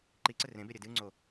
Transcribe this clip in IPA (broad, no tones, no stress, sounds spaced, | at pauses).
ǃ i ǀ ɘ r ẽ b e ɾʲ ɘ d ɨ ŋ͡ǀ o